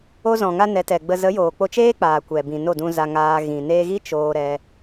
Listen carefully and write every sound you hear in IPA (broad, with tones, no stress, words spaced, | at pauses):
o˧zɔ̃˨ŋa˧ nɛ˨˦tɛ˨ɡ͡bə˧ zə˨˦joː˨k͡po˧t͡ʃeː˦ k͡paː˨kʷɛ˨bĩ˨ no˦˨dũ˧ za˧ ŋaː˧ ɣĩ˨neː˧ɣi˦ t͡ʃoː˧ ɾɛ˧